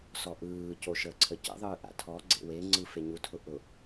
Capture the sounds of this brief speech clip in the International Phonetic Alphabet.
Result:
s ɔ ʔ ɯː c o ʃ əː ǀʰ ə c ə̰ ðˤ ɯː ʔ a̰ tʰ ɔ ɡ͡ǀ ḛ w e ŋ͡ǀ ɯ f e ɲ u tʰ ʊ ʔ ʊ

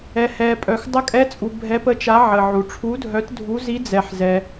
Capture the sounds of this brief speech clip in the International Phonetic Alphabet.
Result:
ɛ˩ h ɛ˩ pʼ œ˩ x dˤ ə˨˦ kʼ ɛ˨˦ t͡sʼ u˩ bʱ ɛ˨˦ p ə˨˦ t͡ʃ a˨˦ ʕ ə˩ ʕ u˩ ʈ͡ʂʰ u˨˦ dʱ œ˨˦ t dʱ u˨˦ z i˨˦ d͡z ɛ˩ ħ z ɛ˩

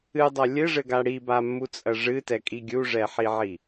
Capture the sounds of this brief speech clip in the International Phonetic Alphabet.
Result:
ɨ dˤ ɐ lʲ ɘ ʐ ɘ ɡ a ɽ i b a mː u t͡sʼ ɐ ʐ ɨ t ɛ kʼ i ɡʲ u ʐ ɛ ħ i ʕ i

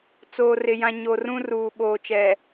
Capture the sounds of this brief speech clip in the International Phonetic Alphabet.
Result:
t͡s oː˨ r ɪ˨ j ã˨ ɲ o˨ r ũ˦ r uː˨ ɓ oː˨ t͡ʃ ɛ˨

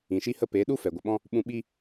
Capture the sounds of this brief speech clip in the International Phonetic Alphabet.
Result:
ĩ˨ ʃ i˧ h ə˧ p e˨˦ ɗ u˦ f ɛ˨ ɡʷ ə˨ ɓ ɔ̃˦ | ɓ ũ˧ ɓ i˦

